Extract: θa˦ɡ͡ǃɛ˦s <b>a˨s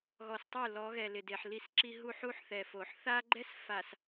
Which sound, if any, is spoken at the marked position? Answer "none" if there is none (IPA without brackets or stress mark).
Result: f